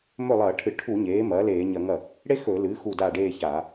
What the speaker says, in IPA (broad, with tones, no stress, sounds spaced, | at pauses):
m ɵ˥˩ lˠ ɐː˧˩˧ ʈʰ ɨ˧˩˧ ʈʰ u˧˩˧ ɲ eː˩˥ m ɐː˩˥ l eː˧˩˧ ɲ ɐ˧˩˧ ŋ ɐ˥˩ | ɽ e˥ x ɵ˧˩˧ l ɨː˩˥ x u˥˩ d a˥˩ ɖ eː˥˧ ç a˧˩˧